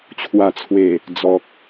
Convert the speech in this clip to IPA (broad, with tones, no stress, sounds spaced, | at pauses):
t͡ɕʰ w a˨˩ t͡sʰ w e˨˩ | d͡z ɔ˨ k̚